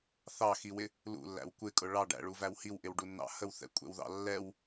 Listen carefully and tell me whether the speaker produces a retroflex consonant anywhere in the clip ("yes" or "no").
yes